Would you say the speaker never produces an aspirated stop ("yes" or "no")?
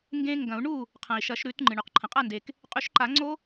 no